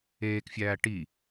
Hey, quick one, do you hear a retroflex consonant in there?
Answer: yes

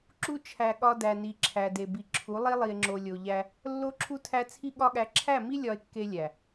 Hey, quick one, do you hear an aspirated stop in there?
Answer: yes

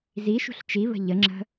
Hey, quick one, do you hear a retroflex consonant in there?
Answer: no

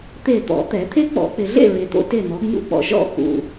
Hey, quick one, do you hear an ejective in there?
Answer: no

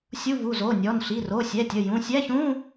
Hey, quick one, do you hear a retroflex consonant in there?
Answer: no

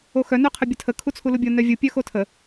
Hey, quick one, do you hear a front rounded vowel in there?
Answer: yes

